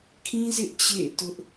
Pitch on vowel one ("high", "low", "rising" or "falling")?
high